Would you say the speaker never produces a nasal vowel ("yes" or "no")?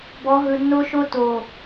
yes